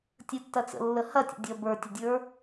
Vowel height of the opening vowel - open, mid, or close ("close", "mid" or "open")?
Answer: mid